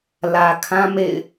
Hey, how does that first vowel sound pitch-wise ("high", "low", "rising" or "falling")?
low